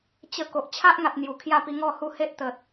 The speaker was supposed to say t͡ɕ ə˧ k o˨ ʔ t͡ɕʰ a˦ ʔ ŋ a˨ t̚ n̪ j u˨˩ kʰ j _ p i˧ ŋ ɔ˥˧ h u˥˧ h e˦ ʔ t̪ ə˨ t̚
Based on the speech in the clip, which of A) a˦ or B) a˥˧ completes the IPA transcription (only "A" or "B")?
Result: A